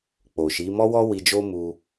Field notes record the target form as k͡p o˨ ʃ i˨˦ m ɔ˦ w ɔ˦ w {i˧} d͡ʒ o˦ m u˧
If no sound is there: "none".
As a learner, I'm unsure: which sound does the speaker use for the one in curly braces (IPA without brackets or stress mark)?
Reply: i˧